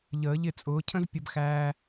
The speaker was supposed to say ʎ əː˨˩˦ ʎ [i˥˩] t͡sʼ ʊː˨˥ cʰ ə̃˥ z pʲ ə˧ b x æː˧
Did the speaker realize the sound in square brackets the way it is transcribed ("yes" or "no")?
no